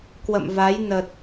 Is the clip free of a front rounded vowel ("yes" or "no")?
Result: yes